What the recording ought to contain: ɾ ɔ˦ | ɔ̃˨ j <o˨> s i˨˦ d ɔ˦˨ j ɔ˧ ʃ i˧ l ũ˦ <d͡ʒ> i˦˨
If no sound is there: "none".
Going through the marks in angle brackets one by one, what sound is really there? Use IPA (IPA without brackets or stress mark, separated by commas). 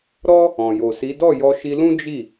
o˨, d͡ʒ